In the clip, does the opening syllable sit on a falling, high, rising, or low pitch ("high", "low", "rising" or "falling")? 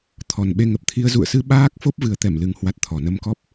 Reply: low